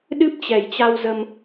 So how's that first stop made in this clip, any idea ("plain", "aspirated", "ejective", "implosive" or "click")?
implosive